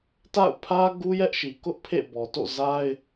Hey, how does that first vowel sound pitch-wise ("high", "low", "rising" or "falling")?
falling